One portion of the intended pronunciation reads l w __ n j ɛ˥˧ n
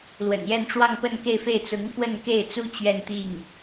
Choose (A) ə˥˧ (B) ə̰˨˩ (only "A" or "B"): B